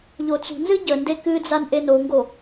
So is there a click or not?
no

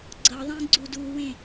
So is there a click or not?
yes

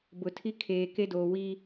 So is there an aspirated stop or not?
yes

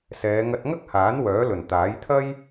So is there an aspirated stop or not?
yes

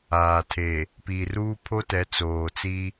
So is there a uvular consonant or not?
no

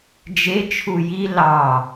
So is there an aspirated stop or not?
yes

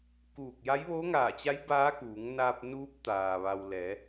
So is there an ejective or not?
no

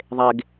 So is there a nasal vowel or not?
no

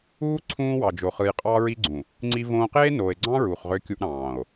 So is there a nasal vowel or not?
yes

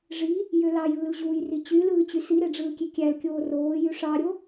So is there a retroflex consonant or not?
yes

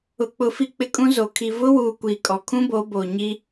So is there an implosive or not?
no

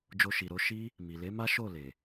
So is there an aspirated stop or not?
no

